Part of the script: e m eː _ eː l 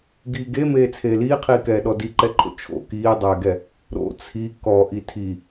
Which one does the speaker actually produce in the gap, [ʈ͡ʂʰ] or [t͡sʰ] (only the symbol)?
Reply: t͡sʰ